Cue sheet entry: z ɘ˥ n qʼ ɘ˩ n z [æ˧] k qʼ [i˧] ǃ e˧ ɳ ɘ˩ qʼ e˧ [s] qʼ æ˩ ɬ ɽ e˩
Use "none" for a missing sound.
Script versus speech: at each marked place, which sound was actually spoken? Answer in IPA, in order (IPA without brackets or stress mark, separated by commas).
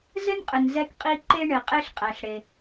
ɛ˧, i˧, ɬ